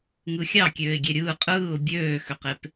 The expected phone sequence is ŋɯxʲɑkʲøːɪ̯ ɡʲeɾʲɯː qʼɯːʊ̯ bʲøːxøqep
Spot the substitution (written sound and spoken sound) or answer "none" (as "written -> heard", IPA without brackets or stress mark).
none